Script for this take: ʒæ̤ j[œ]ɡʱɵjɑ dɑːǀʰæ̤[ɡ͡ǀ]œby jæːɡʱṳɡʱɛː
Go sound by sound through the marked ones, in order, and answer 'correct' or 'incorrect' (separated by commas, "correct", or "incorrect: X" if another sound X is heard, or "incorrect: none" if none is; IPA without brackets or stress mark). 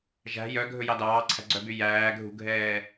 correct, correct